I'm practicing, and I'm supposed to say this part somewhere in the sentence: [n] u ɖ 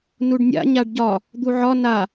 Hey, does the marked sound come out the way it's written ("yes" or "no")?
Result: yes